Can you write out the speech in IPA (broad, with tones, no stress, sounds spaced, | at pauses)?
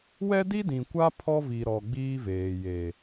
w ɛ˦ d i˦ d ĩ˨ kʷ a˦ pʰ ɔ˦ v i˨ ɾ ɔ˨ ɡ͡b iː˦ v eː˨ j e˨